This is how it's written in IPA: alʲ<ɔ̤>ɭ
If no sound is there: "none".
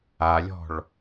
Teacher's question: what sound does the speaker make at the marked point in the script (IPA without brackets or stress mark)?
ɔ̤